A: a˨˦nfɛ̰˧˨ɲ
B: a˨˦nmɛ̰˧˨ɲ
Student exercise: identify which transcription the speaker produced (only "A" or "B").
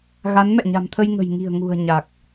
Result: B